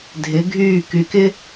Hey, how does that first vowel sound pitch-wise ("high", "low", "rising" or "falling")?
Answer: rising